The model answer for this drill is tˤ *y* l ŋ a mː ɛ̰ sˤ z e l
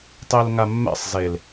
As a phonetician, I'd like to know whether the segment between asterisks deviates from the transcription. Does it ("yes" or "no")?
yes